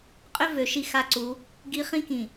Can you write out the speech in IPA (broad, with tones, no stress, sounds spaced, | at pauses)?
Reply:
qʼ ʏ˦ v ø˨ ʃ i˦ x a˦ ǀ u˨˦ | ɡ i˦ χ ĩ˦ k ĩ˨